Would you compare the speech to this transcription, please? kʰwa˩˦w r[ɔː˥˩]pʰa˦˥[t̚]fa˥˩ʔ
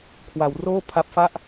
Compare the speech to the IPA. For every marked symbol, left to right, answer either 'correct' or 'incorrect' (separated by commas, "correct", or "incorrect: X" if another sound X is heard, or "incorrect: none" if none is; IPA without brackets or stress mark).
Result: incorrect: oː˥˩, incorrect: p̚